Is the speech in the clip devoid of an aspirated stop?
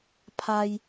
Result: no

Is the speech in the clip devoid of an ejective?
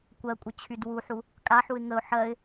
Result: no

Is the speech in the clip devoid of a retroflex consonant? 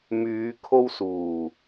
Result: yes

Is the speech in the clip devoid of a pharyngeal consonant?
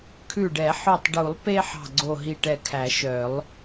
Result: no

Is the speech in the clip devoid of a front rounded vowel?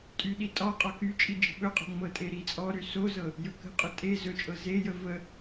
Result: no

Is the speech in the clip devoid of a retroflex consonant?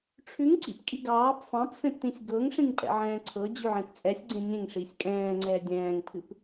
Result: no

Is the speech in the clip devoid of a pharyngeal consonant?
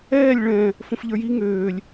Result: yes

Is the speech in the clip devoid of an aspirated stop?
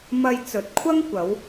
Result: no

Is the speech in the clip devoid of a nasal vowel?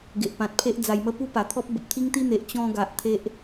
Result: no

